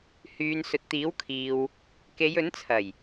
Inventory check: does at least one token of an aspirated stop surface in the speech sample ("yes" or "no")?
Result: yes